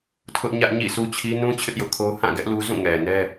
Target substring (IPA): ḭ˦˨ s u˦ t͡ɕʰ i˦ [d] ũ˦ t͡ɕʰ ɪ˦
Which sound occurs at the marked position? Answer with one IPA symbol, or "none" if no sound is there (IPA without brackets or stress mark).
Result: n